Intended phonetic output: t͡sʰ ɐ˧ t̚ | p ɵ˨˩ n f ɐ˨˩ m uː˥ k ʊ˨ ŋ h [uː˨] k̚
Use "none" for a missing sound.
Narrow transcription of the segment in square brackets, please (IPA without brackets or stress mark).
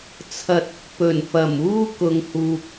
uː˨